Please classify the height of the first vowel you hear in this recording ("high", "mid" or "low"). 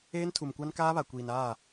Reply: mid